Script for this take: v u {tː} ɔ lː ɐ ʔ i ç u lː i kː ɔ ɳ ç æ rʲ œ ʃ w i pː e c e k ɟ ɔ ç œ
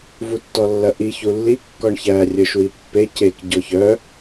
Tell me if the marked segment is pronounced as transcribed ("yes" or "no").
yes